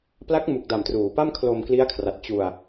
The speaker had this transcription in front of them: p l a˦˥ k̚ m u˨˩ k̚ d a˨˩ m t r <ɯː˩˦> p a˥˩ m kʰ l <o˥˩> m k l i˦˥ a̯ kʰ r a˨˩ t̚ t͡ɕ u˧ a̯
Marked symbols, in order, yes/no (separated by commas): no, no